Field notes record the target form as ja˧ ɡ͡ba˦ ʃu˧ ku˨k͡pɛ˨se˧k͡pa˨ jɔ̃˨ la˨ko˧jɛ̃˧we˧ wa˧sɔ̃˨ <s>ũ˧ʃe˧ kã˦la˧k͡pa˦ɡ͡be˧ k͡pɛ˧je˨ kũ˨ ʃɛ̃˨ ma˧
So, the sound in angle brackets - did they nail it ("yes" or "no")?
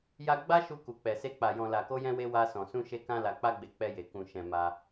yes